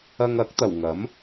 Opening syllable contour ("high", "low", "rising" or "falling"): low